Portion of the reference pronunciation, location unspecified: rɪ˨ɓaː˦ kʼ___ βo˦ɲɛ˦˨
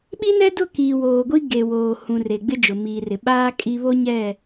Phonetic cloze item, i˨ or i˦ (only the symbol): i˦